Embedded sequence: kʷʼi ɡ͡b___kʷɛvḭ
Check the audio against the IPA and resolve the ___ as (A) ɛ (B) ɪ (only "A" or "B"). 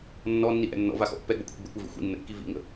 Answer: B